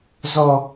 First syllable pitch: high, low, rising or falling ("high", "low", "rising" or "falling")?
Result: high